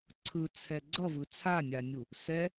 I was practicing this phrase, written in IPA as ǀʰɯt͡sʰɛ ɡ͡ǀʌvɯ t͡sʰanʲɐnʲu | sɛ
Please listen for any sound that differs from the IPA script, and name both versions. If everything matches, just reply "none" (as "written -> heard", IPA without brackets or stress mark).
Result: ɐ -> a